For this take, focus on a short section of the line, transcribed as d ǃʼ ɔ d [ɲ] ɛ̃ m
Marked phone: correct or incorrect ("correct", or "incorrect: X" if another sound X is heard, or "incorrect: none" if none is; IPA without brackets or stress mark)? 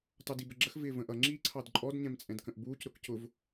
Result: correct